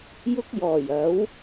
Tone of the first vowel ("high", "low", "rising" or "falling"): high